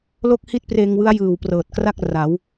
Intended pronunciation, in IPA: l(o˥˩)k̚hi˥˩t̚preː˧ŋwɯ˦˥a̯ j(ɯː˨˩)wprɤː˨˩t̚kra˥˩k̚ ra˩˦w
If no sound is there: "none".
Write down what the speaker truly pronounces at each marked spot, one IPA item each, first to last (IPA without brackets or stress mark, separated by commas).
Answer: o˥˩, ɯː˨˩